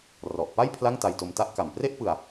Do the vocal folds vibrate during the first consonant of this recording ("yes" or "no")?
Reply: yes